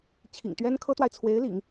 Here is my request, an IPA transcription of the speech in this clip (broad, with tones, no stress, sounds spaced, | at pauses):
t͡ɕʰ ḭ˨˩ ŋ t̪ ɥ ɛ˥ n kʰ ɤ˥ t̪ w a˨ ɪ̯ t͡sʰ w e˧˥ ɪ̯ l ḭ˨˩˦ ŋ